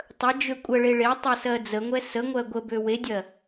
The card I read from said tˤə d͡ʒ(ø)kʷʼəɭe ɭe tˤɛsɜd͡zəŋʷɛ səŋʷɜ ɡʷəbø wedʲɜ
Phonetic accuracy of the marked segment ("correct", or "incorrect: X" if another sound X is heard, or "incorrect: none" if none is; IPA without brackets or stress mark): correct